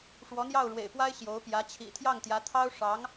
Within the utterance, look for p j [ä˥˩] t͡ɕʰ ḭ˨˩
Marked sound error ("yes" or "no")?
yes